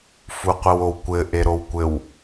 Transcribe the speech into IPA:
fuqʷɘwowkʷɘ ʔeɾowkʷɘw

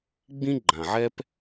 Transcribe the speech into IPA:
ɡ͡bĩ˦ ɡ͡ǃã˨ʕɛ˦p

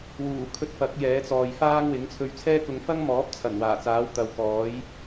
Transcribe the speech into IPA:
wuː˨˩ kʰɵ˧t̚fɐ˨˥k̚ jɛː˨˥t͡sɔː˨jfaː˥ŋ wɪ˨˥ŋt͡sʰɵ˧ɥt͡sʰɛː˥ kʊ˨˧ŋfɐ˥ŋmɔː˨˥p̚t͡sʰɐ˨˩n waː˨˩t͡saː˨˥w t̪ɐ˨˧wkɔː˨˥j

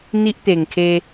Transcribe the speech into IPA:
n̪i˦ʔt̪e˨˩ŋ kʰe˧

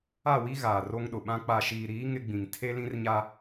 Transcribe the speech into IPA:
a˦˨wi˦ ɣaː˨ro˦ŋɗʊ˨ɓã˦ k͡pa˨ʃiː˨ɾiː˨˦ ŋɪ˦ɡ͡bĩ˨ŋ tʰe˦lĩ˦rɲa˦

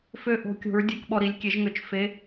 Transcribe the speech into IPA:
fø˧ʔo̤˨˩˦kʲo̤˩˥ɹ dʲe˧˥˧kɓɔ˧ɾi˩˥lʲ kʲe˩˥ʒŋø˩˥t͡ʃ fe˧˥˧

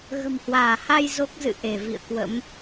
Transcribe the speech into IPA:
ɣə̤˨˩mhwaː˧˩ha˧j zo˦˥k̚zɨ̰˧˨ ʔe˧˩vḭ˧˨ə̯ kwə̰˧˥m

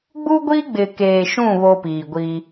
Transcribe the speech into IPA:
ɡ͡bu˦ɡʷiː˦ ɡ͡bɪ˨keː˨ʃũ˦˨ βo˦piː˨ɡʷi˦

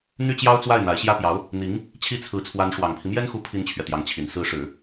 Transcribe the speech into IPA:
n̪y˥˩t͡ɕjɑ˥ʊ̯t͡swa˥˩ɪ̯ n̪a˧˥ɪ̯ɕjä˥pjɑ˧˥ʊ̯ | n̪i˧˥ŋ | t͡ɕʰi˥˩t͡sʰɹ̩˧˥t͡sʰwa˧˥n ʂwɑ˨˩ŋpʰi˦mjɛ˥nxu˧˥ pʰi˥nt͡ɕʰɥɛ˨t̪jɑ˧˥ŋt͡ɕʰi˨˩n sɹ̩˧˥ʂɻ̩˨˩˦

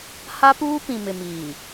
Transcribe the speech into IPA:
ha˦ puː˦pĩ˨mɪ˨miː˨

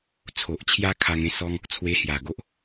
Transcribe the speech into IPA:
t͡sʰo˨ʔt͡ɕʰja˦ kʰa˧ŋẽ˥˧sɔ˦ŋ | t͡sʰwe˧hja˨˩ɡo˦ʔ

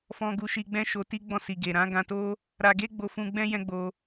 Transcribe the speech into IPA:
fɔ̃˧ɡu˧ʃi˧ɡ͡bɛ̃˦ ʃo˧ti˦ ɡ͡bɔ̃˧si˨ɡe˨ ɾã˨˦ɡã˧to˦ | ɾa˧ɡe˦ɡ͡bo˧fũ˧ ɡ͡bɛ̃˦jɛ̃˦ɡ͡bo˧

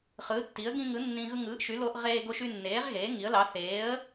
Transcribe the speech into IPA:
χɯː˩˥tːi˩˥ə̯ ɡĩ˧ŋɯ˩˥ nːĩ˧ ɣɯ˧ŋɯː˩˥ʔʃy˩˥loː˧ʔ ʁeː˧ɡo˧ ʃy˧nːeː˩˥ʁɣeː˩˥ ŋi˩˥ə̯lɑ˩˥ θeː˩˥ə̯

